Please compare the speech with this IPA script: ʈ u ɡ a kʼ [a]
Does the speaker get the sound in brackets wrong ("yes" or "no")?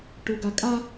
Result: no